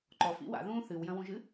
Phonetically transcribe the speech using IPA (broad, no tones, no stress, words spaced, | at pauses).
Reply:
ǃɔfḭ wa̰ðũː θɨwjɐ̃wũʒɨ